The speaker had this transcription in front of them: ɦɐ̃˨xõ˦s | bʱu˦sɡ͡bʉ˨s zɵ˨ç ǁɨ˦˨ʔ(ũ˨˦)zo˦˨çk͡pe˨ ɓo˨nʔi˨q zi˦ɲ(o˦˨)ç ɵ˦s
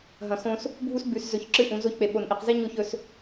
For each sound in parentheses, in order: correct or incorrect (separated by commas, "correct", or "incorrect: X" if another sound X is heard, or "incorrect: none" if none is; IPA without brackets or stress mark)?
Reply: correct, correct